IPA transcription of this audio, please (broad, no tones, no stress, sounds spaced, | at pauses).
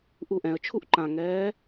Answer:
ʔ u ʔ ɛ̃ ə̯ t͡ʃʰ u ʔ ǃ ã ŋ ɛː